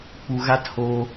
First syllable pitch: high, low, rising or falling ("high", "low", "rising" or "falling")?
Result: low